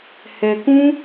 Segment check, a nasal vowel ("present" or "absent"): present